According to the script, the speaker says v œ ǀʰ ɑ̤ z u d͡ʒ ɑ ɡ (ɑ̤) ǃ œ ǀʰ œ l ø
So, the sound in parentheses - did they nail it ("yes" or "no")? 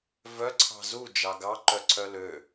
no